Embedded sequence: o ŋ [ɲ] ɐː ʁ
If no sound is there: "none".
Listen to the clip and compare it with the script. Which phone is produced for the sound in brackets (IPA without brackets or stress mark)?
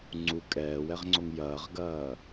j